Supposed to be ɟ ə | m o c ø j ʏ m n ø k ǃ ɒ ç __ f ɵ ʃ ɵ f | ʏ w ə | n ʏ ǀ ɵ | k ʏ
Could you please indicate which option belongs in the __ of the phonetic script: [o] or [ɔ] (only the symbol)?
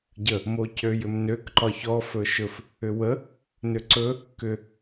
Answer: ɔ